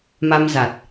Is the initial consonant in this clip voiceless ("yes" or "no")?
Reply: no